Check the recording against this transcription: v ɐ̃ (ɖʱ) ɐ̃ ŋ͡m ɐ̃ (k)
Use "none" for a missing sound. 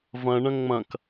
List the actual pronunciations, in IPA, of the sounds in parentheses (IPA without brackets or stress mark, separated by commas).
ɳ, k